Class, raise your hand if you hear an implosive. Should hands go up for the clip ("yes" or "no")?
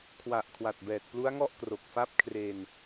no